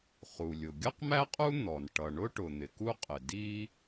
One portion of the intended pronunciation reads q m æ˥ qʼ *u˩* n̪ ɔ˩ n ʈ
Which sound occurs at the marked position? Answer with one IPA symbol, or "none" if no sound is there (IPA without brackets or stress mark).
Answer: u˥